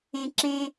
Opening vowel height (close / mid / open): mid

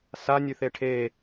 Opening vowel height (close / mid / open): open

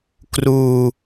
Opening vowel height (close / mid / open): close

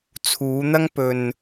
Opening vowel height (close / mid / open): close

